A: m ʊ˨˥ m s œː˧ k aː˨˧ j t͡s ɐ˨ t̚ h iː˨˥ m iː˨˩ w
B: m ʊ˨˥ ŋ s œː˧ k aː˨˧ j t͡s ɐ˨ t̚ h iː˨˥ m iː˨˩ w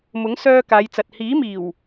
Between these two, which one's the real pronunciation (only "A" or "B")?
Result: B